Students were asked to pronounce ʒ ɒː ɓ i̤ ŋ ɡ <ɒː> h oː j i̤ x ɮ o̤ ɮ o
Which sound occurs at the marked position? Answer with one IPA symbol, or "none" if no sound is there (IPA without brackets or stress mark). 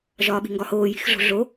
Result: ɒ